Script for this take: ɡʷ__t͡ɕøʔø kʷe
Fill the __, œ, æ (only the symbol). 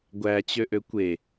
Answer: æ